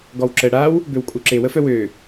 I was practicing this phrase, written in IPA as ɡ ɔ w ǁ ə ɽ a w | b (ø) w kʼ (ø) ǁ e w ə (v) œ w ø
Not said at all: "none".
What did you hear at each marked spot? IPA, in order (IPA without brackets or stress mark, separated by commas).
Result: ø, u, f